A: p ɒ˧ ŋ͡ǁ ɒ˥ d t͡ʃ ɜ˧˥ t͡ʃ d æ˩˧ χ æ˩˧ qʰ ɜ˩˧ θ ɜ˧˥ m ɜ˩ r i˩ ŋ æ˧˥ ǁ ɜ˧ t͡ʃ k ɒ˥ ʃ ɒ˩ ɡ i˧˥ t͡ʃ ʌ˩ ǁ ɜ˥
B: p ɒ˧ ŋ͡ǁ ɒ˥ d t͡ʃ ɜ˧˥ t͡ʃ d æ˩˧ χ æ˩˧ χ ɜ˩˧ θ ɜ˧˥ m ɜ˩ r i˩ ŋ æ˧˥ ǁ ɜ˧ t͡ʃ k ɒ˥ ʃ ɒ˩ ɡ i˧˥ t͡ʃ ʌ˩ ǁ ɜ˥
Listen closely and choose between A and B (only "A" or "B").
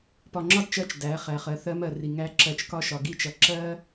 B